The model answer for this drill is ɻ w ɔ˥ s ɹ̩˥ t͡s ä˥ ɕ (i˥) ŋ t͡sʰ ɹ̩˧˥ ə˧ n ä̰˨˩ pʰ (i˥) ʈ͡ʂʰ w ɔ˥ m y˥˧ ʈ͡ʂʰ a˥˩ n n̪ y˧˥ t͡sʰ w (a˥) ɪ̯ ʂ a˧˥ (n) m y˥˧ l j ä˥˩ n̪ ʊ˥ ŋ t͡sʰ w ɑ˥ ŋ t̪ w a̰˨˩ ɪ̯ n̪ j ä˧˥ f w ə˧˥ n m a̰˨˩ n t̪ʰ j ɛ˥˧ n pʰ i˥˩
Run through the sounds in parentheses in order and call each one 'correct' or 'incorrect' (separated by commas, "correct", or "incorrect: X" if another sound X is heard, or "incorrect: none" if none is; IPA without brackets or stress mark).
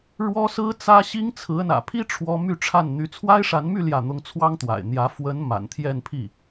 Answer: correct, correct, correct, correct